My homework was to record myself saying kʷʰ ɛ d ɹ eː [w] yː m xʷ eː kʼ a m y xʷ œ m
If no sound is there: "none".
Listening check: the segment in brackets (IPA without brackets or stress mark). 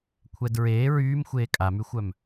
ɹ